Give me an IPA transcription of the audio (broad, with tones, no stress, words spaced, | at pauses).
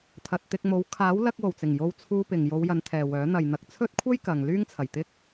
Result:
t̪ʰɐ˨t̚t̪ɪ˧k̚mo˨˥w kʰaː˨˥w lɐ˧k̚wo˨˩wt͡sɪ˨˩ŋ jo˧wt͡sʰuː˧pɪ˨ŋ jo˨˧wjɐ˨˧nt̪ʰɛː˨ wœː˨˥ n̪ɐ˨j n̪ɐ˨k̚t͡sʰɵ˥t̚kʷʰɐ˥j kɐ˨ŋlyː˥ŋt͡sʰɐ˨˩j t̪ɪ˥k̚